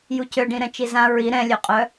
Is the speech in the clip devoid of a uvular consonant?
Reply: no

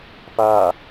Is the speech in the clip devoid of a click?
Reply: yes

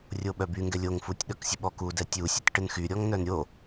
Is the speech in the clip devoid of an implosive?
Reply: no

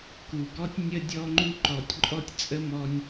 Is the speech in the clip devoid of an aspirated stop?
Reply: yes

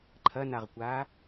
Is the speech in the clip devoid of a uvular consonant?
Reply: no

